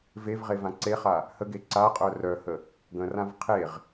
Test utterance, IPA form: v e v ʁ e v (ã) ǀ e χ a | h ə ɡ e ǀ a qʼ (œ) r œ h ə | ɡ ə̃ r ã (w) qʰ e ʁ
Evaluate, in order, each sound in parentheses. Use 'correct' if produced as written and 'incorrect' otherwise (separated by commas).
correct, correct, incorrect